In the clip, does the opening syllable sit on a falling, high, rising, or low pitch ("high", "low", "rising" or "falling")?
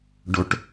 high